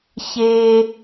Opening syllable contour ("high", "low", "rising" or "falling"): high